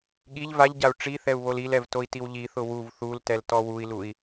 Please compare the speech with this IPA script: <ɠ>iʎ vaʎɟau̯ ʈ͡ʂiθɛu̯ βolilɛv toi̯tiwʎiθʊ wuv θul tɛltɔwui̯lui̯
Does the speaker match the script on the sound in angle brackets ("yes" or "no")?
yes